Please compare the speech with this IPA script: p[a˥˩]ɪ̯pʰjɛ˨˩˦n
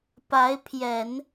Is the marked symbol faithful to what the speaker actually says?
no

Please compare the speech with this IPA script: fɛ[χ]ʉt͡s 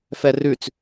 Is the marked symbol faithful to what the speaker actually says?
no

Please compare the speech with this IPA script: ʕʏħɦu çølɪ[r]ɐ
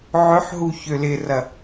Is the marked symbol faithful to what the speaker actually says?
yes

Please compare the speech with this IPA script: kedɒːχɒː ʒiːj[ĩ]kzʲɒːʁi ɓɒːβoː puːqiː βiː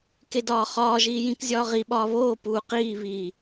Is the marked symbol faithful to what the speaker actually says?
yes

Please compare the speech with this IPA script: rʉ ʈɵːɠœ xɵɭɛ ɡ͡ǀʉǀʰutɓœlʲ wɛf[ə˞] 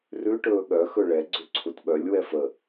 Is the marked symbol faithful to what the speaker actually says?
no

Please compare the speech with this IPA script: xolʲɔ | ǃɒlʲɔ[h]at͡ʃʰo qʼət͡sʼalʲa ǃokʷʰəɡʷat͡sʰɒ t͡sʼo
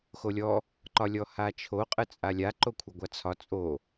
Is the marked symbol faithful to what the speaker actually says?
yes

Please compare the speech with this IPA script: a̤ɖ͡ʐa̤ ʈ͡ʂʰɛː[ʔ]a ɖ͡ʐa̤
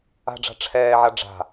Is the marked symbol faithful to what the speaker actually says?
no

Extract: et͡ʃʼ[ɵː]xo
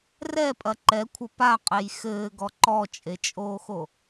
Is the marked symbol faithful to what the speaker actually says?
no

